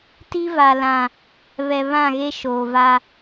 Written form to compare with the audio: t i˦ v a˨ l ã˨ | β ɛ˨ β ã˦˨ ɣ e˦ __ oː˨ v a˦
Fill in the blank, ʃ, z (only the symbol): ʃ